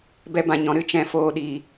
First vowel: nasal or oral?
oral